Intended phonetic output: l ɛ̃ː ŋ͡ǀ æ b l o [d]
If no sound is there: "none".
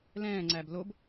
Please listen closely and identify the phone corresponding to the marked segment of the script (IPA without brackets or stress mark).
b